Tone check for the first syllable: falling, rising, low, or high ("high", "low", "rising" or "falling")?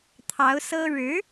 rising